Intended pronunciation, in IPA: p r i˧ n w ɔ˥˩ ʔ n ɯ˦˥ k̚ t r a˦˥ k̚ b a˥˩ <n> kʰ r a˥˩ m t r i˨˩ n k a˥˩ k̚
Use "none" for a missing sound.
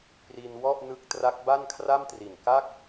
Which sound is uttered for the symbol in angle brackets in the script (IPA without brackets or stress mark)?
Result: n